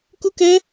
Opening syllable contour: high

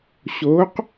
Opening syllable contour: rising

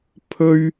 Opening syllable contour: high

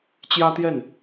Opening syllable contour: high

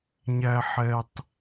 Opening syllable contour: high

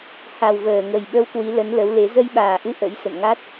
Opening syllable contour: low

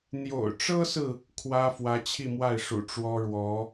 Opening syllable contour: low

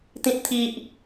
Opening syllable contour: high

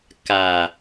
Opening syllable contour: low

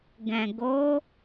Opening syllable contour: low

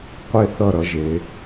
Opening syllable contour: falling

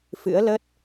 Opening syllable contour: rising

